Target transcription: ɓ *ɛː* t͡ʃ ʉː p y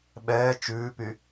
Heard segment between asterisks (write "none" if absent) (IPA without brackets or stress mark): ɛː